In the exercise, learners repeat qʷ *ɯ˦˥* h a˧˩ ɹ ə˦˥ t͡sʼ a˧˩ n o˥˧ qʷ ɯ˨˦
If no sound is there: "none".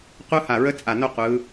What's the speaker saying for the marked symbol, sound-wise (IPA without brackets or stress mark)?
ɯ˦˥